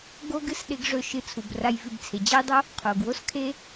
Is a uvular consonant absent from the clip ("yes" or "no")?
no